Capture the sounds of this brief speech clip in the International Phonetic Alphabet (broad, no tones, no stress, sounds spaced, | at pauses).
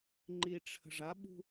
ŋ͡ǃ i ʈ͡ʂʰ ə̤ ʐ a ɓ ṳ